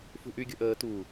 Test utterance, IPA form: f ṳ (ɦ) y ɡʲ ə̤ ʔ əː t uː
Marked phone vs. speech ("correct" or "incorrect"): incorrect